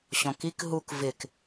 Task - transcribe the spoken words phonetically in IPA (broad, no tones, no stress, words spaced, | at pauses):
ɕɔ̃kik ɦuk vɪk